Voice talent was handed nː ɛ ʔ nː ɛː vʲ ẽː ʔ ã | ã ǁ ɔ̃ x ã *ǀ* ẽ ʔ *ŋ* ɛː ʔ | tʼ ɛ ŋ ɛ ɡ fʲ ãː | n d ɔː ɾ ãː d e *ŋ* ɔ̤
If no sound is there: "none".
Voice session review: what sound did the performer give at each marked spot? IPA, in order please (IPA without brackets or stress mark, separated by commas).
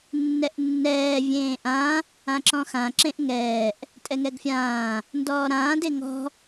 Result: ǁ, ŋ, ŋ